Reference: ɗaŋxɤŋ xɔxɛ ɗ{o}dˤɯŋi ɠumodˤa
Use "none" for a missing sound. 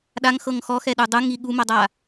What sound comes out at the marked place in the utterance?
u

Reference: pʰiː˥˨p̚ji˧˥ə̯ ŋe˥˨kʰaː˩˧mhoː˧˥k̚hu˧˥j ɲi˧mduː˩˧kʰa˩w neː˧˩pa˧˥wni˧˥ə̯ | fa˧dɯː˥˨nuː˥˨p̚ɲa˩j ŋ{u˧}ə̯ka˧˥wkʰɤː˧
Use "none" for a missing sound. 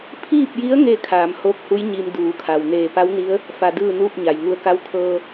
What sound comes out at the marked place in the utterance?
u˧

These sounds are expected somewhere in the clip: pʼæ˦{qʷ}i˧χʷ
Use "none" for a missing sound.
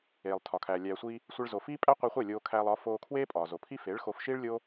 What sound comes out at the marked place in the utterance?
qʷ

